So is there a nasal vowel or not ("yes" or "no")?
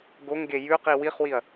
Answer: no